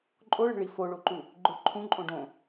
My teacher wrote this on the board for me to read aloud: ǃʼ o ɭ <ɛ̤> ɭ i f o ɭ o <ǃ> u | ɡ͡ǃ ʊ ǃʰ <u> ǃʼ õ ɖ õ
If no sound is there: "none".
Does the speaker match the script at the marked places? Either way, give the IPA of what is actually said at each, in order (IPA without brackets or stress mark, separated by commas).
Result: ɛ̤, ǃ, ũ